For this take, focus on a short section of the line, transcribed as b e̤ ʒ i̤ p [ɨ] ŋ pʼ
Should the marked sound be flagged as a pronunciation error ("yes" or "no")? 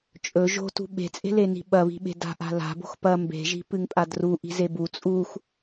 no